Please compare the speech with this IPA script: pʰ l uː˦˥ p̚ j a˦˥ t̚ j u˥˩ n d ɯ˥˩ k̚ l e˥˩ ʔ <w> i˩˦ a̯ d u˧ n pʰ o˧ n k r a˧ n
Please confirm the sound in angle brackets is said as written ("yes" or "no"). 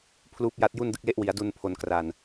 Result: yes